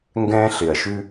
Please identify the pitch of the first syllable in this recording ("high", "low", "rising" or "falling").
high